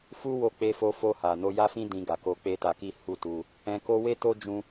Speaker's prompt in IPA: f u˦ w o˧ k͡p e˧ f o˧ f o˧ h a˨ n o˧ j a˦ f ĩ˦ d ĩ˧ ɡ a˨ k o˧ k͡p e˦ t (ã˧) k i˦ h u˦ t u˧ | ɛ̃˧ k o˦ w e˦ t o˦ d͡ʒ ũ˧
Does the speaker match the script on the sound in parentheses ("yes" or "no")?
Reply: no